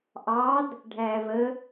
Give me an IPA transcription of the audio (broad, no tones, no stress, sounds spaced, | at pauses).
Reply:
ʔ ɑ d | ɖʱ æː v ə